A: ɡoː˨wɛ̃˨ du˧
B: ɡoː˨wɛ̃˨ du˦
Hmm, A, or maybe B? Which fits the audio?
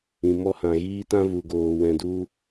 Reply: A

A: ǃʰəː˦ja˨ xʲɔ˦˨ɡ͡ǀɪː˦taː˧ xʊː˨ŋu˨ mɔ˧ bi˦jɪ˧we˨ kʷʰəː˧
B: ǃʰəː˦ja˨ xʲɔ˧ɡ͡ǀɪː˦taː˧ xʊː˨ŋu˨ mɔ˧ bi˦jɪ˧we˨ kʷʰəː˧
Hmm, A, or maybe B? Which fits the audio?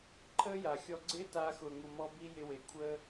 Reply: B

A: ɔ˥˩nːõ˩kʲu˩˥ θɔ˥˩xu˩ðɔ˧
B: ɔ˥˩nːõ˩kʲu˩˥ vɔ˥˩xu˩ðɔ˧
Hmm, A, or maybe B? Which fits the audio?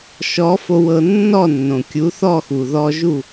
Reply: A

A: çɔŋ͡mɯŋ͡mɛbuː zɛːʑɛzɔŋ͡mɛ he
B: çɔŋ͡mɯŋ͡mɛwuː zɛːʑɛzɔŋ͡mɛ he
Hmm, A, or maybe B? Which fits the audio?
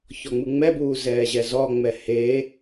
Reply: A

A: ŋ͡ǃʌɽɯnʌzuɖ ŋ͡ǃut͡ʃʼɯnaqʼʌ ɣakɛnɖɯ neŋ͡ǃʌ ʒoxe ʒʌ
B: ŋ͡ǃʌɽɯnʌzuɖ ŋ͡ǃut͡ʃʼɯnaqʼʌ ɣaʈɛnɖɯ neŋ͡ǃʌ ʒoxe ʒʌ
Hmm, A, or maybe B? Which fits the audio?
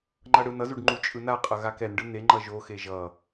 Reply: A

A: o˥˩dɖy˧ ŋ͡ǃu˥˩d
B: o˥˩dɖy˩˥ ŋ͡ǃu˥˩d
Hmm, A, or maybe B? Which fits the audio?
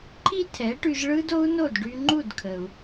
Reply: A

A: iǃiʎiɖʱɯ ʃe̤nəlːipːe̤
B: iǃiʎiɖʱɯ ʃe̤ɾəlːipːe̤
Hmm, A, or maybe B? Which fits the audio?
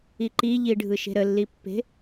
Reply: B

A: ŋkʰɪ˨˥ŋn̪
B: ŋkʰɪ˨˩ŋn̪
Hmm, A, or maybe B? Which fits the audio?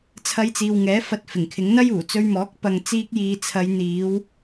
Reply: A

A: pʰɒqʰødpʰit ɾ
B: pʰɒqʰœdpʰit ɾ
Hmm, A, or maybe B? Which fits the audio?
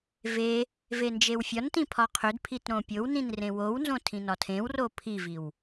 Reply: A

